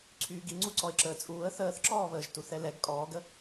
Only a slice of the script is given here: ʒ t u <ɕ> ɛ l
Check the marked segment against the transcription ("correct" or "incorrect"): incorrect